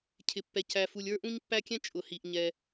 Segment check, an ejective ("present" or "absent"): present